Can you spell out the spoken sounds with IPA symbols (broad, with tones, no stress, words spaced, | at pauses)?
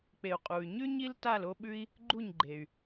k͡pe˩u̯qʼu˩y̯ɲʉ˥ ɲi˥lta˥˩l o˥ɓʉ˥i̯ | ɡ͡ǃu˥˩ɲɡ͡ǃe˩y̯